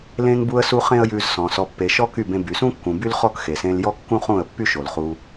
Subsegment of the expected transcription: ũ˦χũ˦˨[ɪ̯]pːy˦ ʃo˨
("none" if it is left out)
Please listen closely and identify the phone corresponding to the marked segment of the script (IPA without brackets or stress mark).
ə̯